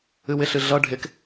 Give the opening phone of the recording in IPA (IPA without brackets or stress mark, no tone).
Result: ɨ